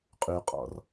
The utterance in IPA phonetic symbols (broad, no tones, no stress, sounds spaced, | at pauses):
qʼ y qʼ ɔ̰ r